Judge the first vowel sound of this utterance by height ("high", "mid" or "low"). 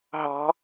low